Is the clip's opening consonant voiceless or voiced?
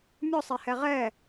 voiced